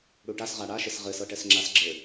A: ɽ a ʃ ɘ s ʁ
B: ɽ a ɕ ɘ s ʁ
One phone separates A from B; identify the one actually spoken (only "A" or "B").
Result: A